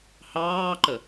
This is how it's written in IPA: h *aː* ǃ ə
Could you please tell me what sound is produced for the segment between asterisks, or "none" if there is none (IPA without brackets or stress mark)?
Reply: ɑː